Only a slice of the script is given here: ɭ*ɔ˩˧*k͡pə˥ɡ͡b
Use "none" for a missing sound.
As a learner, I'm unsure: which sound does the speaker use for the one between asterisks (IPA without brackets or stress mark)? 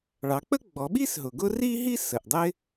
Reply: ɑ˩˧